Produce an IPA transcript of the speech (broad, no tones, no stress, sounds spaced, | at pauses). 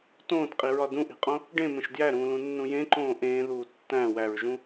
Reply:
t õː t qʼ i ɹ ɒ d ũ ʔ i̤ qʼ õ | ɖ ẽ m ẽ ʃ d j æ ɾ ũː l ũ nː ũ j ẽ ǃ õː ʔ ẽː ð uː tː æ̃ w æ ɹ ʒ ũ